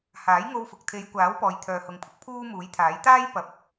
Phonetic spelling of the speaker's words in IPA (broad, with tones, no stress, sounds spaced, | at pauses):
h aː˨˥ j ŋ o˧ w f ʊ˨ k̚ t̪ʰ e˨˧ j kʷ aː˨˥ w p ɔː˨ j t̪ʰ œː˨ h ʊ˨ ŋ pʰ ʊ˨˥ k̚ pʰ uː˥ m uː˨˥ j t̪ʰ aː˨˥ j t̪ aː˥ j p ɐ˨ p̚